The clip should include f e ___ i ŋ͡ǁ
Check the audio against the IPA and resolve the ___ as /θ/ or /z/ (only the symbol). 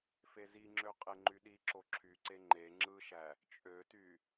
z